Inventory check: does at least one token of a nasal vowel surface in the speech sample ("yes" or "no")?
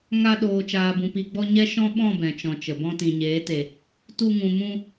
yes